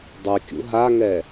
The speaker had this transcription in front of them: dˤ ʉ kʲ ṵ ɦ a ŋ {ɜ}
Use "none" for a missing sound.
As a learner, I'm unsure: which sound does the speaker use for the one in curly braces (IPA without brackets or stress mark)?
ɛ